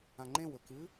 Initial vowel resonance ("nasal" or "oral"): nasal